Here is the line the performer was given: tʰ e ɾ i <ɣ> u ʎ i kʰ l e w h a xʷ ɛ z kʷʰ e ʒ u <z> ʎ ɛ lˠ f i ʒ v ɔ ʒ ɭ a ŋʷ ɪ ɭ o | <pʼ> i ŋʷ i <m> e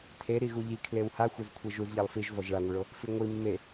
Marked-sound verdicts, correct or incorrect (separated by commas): correct, correct, incorrect, incorrect